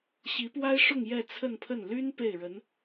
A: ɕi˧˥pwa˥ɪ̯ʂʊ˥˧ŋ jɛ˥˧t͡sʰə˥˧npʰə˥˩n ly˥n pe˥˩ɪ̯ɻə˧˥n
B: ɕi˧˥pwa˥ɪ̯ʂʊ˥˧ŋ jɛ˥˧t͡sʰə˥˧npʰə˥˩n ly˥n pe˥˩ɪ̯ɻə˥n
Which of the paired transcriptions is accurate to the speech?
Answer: A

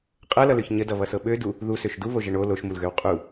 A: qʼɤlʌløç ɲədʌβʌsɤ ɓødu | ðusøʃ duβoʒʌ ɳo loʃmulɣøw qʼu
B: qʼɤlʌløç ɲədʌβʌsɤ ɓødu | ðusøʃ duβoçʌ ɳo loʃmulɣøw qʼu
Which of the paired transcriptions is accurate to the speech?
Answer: A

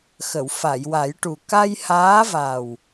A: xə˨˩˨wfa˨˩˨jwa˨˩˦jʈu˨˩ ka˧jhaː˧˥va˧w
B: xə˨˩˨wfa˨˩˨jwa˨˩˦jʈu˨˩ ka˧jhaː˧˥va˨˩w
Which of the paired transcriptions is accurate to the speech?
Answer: B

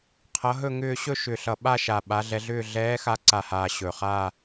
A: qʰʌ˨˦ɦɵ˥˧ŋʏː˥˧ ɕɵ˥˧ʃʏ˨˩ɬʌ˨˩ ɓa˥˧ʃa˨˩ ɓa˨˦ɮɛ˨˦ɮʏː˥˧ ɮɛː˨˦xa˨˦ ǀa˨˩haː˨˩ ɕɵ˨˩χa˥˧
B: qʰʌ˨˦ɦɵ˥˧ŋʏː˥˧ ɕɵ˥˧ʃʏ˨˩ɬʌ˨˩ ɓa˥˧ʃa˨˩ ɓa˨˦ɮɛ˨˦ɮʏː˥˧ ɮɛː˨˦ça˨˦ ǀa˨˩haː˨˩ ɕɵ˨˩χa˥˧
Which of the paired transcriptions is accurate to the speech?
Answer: A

